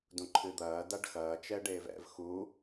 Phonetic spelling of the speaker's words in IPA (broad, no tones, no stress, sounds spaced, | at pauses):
d ũ ǃʰ ɨ d̪ ɐː d a ɖ x ɐː t͡ʃ ɛ ɖ eː v ɛ̰ v x u